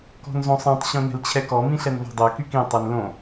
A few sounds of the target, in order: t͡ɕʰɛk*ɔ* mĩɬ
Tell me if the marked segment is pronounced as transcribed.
yes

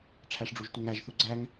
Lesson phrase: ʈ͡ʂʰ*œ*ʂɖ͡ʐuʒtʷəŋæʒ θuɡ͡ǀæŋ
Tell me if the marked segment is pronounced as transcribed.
no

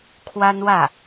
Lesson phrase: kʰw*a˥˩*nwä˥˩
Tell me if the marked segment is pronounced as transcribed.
no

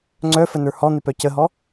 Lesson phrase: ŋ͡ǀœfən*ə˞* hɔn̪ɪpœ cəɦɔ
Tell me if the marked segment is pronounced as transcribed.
yes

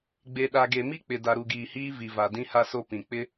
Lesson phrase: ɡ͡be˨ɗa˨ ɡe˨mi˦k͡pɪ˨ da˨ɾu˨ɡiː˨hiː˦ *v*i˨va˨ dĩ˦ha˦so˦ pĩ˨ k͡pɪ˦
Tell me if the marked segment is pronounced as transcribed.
yes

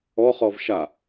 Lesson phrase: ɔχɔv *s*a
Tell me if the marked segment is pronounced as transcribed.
no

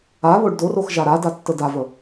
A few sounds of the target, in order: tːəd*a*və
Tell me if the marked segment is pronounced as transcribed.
yes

